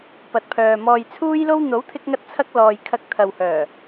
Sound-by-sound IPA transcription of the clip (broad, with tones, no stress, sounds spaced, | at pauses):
p ɐ˨ t̚ pʰ œː˨ m ɔː˨ j t͡sʰ uː˥ j l o˥ w n̪ o˨˥ w t̪ʰ ɪ˧ k̚ ŋ ɐ˧ t̚ t͡sʰ ɐ˧ k̚ l ɔː˨ j kʰ ɐ˧ k̚ t̪ʰ ɐ˨ w h œː˨˩